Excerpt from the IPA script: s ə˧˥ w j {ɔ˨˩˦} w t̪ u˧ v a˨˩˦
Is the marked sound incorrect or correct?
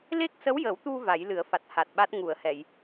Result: incorrect